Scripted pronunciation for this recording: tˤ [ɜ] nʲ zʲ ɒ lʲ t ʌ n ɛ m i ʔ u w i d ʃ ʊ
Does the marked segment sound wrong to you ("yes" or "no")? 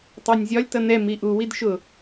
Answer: no